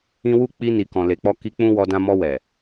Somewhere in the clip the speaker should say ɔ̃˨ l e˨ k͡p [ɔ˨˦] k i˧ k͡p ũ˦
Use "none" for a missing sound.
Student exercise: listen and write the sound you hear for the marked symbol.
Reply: ɔ˧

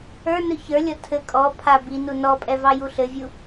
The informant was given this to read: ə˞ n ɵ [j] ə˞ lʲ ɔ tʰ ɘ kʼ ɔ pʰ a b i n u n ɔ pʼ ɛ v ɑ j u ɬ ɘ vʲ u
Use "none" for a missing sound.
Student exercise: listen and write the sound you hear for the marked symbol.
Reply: ç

